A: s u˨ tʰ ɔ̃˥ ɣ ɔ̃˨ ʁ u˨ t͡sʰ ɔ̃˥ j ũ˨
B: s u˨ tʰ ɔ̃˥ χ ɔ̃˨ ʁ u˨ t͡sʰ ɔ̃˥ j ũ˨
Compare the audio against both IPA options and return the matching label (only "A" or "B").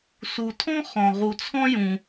B